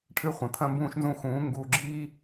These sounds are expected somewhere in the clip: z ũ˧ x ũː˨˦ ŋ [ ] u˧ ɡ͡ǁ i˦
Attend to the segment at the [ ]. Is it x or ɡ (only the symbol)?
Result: ɡ